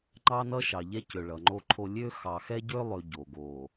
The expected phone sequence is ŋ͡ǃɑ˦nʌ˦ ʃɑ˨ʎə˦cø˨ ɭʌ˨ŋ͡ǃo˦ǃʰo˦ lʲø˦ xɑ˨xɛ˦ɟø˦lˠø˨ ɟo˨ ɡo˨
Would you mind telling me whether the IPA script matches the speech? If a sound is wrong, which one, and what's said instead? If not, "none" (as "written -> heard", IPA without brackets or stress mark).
ə˦ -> ɛ˦